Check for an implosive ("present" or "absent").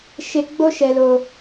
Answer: absent